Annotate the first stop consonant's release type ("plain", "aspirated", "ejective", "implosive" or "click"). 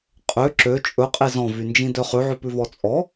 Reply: ejective